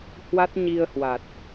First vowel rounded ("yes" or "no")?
no